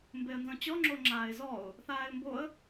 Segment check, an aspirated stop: absent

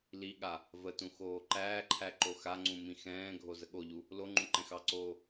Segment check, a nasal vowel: present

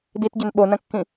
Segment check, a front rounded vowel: present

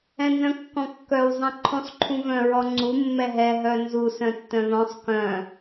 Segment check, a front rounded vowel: present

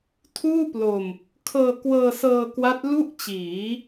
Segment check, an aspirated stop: present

